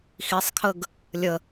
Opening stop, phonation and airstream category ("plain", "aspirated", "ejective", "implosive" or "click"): aspirated